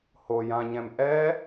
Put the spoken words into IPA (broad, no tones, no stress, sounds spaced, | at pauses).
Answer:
h o j ã ɲ ɛ̃ m ʔ ɛ